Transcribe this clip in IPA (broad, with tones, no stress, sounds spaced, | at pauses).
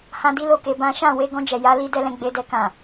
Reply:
h ã˦ d i˦ l o˦ k e˧ b ã˦ ʃ ã˦˨ w e˧ ɡ ɔ̃˧ d͡ʒ ɛ˨ j a˧ l i˧ d ɛ˦ l ɛ̃˧ ɡ͡b e˧ d ɛ˧ k ã˨